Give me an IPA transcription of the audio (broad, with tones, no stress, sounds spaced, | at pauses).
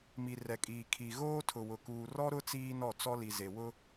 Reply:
m i˨ r ɛ˨ kʼ iː˨ kʰ i˨ ɣ oː˦ tʰ ʊ˨ w ʊ˨ k uː˨ r ɔ˦ ɾ ʊ˦ t͡s iː˦ n ɔ˦˨ t͡s ɔ˦ l i˨ z e˨ w ʊ˦